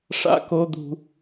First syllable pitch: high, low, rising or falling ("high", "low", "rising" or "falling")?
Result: high